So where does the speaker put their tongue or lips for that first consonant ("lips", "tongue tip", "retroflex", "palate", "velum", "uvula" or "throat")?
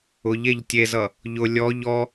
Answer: palate